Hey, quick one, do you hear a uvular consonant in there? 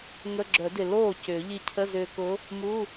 no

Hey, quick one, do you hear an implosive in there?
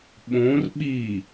yes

